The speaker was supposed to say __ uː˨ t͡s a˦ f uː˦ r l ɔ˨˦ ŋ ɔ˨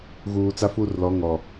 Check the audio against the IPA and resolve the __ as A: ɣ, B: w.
A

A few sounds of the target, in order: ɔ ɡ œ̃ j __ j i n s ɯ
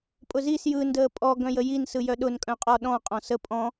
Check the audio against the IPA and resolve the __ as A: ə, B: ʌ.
A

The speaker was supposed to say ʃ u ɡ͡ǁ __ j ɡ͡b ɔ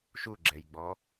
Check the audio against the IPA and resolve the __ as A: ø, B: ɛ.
B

